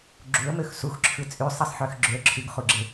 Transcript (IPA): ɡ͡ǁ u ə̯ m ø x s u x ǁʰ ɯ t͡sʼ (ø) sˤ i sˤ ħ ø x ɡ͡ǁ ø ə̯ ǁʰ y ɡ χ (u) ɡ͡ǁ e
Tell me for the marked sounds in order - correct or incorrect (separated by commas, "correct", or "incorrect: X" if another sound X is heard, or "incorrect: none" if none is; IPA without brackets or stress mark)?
incorrect: y, correct